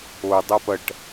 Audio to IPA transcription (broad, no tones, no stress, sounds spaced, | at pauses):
o dˤ o p ɐ ʈ